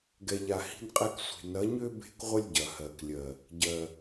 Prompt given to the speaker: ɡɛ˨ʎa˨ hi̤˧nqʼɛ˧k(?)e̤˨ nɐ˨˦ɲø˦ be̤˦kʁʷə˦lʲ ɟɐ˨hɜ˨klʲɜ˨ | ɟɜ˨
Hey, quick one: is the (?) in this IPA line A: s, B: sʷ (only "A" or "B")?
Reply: B